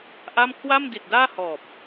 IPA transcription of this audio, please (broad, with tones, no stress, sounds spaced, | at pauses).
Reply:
ʔ a˥˩ m kʰ w a˥˩ m d i˨˩ t̚ d aː˥˩ h ɔː˨˩ p̚